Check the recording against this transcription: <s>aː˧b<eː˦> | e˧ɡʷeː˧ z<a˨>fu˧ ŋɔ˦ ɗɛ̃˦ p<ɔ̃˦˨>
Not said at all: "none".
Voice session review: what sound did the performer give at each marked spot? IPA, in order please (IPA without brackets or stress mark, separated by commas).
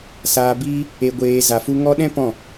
s, iː˦, a˨, ɔ̃˦˨